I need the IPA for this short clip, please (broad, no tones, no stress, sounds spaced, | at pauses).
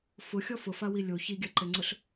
f ʊ xʲ ɔ f ʊ f a w i lʲ o ç i ɡʲ a ǃ ɛ ŋ͡ǀ ʊ ɬ